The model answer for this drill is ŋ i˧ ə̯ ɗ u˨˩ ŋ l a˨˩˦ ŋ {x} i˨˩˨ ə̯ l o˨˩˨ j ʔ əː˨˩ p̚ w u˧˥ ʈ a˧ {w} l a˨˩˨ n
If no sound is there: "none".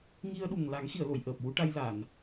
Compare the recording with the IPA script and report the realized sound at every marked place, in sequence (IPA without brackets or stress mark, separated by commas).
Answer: x, j